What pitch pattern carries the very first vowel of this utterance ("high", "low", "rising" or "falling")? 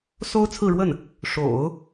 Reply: high